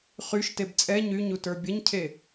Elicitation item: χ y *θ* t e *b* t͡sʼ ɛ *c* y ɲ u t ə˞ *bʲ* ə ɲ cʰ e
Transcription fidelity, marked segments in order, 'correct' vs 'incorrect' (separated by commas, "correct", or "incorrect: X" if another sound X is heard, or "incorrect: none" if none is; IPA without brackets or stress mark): incorrect: ʃ, correct, incorrect: ɲ, correct